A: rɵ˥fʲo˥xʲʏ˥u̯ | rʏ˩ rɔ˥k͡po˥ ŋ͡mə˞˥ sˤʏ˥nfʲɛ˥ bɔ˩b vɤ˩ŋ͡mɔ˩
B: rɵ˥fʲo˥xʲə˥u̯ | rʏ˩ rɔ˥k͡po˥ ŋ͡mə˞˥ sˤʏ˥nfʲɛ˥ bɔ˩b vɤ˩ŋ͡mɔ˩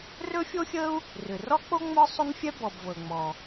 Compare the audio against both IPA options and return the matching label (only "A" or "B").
B